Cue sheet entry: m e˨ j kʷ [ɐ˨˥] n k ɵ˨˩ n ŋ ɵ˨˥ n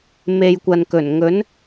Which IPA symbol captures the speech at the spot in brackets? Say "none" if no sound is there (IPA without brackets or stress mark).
ɐ˨